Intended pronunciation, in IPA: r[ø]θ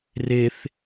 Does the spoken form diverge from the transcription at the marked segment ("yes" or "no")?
yes